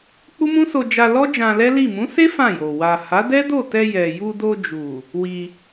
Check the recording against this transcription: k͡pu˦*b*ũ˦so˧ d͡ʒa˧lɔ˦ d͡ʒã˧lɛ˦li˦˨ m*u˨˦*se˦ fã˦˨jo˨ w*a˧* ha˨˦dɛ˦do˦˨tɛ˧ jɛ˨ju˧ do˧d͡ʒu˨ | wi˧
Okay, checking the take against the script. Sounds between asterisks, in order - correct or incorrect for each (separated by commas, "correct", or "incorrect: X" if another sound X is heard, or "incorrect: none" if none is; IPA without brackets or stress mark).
incorrect: m, incorrect: ũ˨˦, incorrect: a˨